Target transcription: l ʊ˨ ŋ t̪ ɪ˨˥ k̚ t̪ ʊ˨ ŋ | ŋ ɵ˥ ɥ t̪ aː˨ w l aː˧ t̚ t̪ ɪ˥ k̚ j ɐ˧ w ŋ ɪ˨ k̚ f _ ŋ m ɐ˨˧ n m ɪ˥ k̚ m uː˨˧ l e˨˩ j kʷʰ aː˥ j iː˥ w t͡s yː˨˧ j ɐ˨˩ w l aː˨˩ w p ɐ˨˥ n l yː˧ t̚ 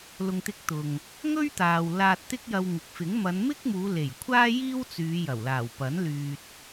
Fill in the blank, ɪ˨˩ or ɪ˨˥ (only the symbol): ɪ˨˥